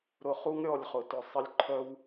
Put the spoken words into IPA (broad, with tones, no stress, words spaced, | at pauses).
ɾʊ˧ χu˦ŋɾʲɔ˦˨lʲχʊ˨tʊ˨ sˤə˧lʲǃʰœ˦w